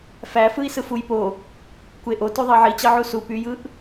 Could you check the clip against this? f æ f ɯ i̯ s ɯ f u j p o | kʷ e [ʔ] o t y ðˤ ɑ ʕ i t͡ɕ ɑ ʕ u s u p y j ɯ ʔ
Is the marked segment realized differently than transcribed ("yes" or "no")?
no